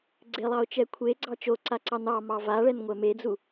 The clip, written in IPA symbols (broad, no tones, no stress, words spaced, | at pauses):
ɡ͡ǀelˠɑʊ̯t͡ʃɛ kʷʰeɡ͡ǀɑ t͡ʃoǀaǀɑn ɑ mɑvaɭɛn ŋʷɛmed͡zu